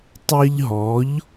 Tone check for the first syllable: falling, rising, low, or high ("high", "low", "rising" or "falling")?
high